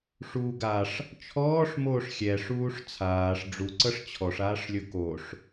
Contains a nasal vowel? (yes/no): no